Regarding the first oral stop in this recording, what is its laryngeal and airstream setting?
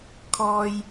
aspirated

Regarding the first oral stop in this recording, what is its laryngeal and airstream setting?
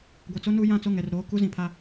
plain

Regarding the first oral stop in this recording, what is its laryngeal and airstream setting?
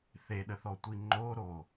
implosive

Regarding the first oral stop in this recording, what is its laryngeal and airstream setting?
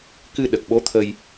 plain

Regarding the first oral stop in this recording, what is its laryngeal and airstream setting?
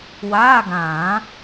plain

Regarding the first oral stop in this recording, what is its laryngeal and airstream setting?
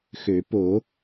plain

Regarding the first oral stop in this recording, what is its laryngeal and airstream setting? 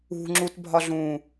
click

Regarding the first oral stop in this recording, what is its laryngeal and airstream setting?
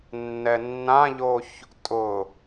ejective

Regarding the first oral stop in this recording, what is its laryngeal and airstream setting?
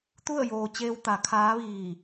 plain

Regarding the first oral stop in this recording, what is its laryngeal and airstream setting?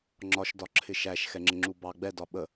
click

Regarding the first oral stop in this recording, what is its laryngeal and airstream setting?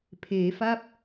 aspirated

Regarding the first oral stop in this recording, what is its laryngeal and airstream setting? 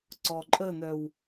click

